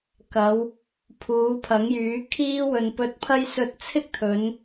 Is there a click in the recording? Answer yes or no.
no